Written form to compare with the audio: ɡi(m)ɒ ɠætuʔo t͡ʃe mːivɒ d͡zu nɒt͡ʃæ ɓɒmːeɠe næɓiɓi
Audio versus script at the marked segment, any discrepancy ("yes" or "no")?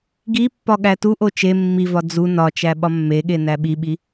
yes